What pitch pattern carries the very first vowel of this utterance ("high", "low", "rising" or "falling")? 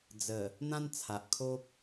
low